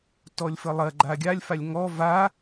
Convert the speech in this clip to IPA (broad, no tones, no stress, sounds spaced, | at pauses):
t ɔ lʲ f ə lˠ ɐ ɡ͡ǃ a ɡʲ a lʲ f a lʲ ŋ ɔ v a